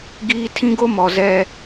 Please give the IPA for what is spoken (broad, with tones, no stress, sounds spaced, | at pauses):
ɡ iː˦ tʰ ĩ˦ ɡ o˦ m ɔ˨ z ɛ˦